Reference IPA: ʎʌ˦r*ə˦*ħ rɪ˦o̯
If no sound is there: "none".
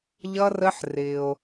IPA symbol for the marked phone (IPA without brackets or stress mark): ə˦